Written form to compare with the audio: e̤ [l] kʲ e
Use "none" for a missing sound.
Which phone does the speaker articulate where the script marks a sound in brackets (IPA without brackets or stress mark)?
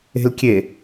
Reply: l